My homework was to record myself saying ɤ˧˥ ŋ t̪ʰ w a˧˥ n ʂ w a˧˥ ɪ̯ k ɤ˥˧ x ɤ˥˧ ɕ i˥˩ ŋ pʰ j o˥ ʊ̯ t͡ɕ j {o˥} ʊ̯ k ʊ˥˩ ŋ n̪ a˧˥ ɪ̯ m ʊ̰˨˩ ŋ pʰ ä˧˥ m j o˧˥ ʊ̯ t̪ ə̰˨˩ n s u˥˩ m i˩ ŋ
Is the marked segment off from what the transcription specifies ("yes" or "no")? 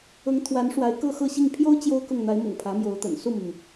no